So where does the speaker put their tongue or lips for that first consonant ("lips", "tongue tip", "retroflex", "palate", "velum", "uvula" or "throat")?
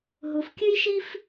throat